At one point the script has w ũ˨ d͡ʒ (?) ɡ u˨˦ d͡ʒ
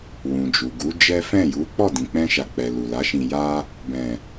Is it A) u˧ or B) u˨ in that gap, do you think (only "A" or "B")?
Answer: B